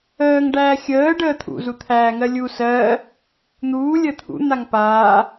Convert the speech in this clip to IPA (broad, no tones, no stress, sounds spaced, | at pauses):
əː ŋ ɖ æː xʲ əː ɖ əː t̪ʰ ṵ z u t̪ʰ æː ŋ ɜ lʲ u s ɜː | n̪ uː lʲ əː t̪ʰ ṵ n̪ a ŋ p aː